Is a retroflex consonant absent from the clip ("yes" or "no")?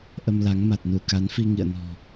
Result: yes